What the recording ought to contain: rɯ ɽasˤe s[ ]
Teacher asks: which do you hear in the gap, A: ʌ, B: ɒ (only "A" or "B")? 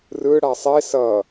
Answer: A